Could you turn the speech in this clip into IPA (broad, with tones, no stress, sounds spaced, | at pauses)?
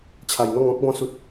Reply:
t͡ɕʰ a˨˩ j n̪ ɔ˥˧ ŋ ɔ̃˦ k̚ b ɔ̃˧ s u˨ t̚